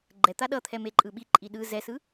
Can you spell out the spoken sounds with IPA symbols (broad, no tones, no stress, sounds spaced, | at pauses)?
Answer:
ɡ͡ǃ ɛ t̪ a ɗ ʌ t̪ʰ ɛ m e ǃʼ ɯ ɓ i ǃʼ i ɗ ɯ z ɛ s ɯ